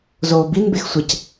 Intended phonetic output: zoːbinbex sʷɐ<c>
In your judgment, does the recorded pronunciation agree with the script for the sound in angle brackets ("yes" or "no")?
yes